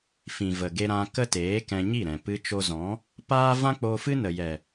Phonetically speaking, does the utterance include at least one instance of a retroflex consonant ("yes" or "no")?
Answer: no